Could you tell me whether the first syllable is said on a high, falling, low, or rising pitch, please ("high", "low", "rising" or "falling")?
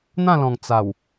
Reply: falling